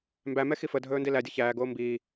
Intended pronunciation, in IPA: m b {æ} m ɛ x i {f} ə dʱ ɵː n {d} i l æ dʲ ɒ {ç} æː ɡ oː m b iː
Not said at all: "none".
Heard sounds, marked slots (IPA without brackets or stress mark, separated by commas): æ, f, d, ç